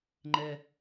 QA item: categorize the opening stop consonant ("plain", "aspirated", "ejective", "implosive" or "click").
click